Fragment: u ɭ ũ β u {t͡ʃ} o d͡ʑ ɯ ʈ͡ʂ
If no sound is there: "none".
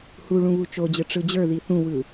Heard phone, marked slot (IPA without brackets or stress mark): t͡ʃ